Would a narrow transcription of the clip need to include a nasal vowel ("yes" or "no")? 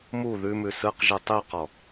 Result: no